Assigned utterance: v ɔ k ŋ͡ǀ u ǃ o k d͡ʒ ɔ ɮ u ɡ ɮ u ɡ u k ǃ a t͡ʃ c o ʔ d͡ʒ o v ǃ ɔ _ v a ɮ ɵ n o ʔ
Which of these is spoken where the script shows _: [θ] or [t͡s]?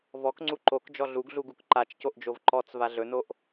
t͡s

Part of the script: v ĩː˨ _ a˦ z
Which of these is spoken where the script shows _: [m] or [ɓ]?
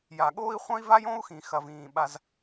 ɓ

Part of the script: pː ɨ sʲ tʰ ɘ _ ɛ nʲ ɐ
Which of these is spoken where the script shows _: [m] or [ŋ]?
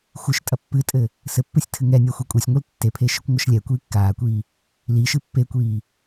ŋ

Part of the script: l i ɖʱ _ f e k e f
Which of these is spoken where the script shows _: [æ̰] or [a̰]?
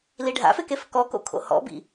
a̰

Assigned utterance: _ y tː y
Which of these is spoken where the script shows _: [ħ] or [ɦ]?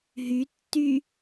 ɦ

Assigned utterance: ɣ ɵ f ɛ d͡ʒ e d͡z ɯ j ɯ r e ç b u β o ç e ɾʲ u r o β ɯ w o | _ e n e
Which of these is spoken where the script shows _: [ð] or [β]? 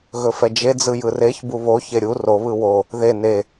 ð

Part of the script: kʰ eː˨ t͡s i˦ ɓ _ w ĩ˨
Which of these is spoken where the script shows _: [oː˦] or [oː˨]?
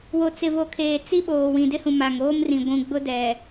oː˨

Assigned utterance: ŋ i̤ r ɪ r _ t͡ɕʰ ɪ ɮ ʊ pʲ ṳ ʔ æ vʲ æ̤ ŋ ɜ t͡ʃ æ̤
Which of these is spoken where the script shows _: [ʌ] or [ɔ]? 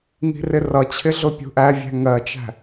ʌ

